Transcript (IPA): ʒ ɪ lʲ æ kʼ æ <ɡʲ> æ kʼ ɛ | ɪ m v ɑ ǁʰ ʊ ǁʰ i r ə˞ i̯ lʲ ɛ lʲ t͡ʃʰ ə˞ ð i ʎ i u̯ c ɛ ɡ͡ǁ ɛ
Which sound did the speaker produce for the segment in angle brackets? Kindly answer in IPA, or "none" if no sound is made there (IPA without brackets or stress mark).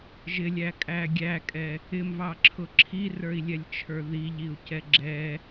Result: ɡʲ